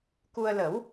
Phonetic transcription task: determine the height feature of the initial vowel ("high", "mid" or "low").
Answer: high